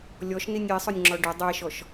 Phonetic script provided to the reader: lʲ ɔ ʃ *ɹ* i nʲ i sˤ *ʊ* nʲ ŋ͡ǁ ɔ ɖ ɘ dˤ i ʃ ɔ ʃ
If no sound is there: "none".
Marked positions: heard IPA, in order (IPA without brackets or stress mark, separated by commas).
n, ʊ